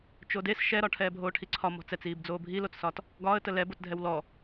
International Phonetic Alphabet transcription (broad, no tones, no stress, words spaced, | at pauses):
t͡ʃodes ʃɛɾɒ ʈʰɛːbʱoːʈʰiǀʰɒ mɔ̤t͡sɛt͡siːb d͡zoːbʱilot͡ssɒt | ɡɒːə̯tə lɛbotdʱɛw lɔ